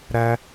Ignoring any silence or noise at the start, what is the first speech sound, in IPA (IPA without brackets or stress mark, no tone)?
ɾ